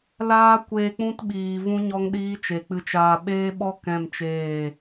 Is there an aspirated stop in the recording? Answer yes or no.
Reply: no